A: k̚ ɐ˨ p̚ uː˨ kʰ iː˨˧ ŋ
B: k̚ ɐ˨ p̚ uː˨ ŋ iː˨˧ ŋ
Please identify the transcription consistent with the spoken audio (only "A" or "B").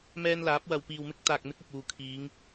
A